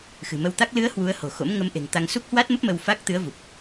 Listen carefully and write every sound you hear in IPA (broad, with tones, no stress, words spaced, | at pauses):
xɨ̤˨˩mə˧wt̪a˦˥k̚ lɨ˨˦ə̯ hwu˨˦ə̯ho̤˨˩xo̰˧˥m ŋə˨˦mʔe̤˨˩ŋt̪a˧ŋ su˦˥k̚hwa˦˥t̚mə˦˥p̚ mə˧wfa˦˥k̚ t̪ɨ˨˦ə̯vu˨˩p̚